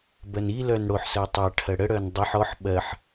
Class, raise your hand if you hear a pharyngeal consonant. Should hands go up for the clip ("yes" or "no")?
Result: yes